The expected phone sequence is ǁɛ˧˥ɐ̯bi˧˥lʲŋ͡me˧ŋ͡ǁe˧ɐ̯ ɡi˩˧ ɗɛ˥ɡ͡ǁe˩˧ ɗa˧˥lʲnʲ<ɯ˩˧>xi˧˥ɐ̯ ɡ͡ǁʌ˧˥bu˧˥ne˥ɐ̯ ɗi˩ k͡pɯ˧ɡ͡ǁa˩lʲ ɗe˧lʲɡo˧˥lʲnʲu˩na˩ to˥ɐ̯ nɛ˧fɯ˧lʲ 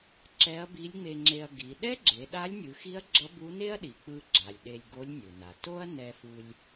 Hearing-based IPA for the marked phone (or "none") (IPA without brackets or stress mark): ɯ˩˧